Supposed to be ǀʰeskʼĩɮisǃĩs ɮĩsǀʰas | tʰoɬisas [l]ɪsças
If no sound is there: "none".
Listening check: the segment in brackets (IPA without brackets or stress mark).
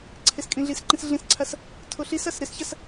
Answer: ɾ